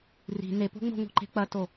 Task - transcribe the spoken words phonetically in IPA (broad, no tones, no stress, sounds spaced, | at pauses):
r i̤ n e p o̤ ŋ͡m o̤ ŋ o̤ ǃ e̤ k͡p ɐ t o